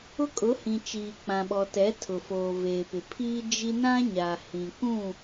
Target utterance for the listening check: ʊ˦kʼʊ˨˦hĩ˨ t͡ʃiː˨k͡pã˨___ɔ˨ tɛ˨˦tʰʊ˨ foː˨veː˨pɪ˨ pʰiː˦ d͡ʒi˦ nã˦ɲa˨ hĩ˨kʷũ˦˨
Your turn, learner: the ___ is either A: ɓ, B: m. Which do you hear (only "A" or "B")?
A